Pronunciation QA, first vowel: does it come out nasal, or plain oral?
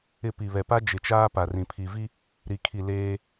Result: oral